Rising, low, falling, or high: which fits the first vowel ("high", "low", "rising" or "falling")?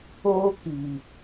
high